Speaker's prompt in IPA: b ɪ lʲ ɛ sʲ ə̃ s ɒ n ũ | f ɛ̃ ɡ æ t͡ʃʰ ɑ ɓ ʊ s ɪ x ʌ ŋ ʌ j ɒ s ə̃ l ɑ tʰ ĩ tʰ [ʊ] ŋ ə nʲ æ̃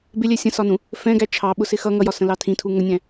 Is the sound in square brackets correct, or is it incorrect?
incorrect